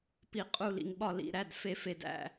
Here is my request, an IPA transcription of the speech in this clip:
p i˨˩˦ qʼ u˧˩ l ḭ˩ ŋ ɓ ɒ˧˩ l ḭ˩˧˩ ɾ æ˩˧˩ d f e˨˩˦ f e˩ d æ̰˧˩

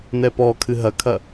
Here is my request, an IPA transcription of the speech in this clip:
n ɛ p ɔ kʰ ɨ ɦ ɐ kʰ ɐ

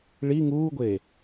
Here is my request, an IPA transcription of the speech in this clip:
ɭ i ŋ uː ɡʷ eː

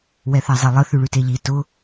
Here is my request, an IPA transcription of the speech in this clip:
w ɛ θ a zˤ e lˠ ə θ ʉ ɭ ʉ t e ʎ i t ʊ

